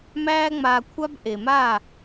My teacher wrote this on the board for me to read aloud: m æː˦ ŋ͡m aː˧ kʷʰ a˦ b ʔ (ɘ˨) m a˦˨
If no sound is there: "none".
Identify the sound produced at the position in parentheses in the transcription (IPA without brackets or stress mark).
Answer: e˨